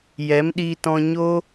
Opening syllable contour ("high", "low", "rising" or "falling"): rising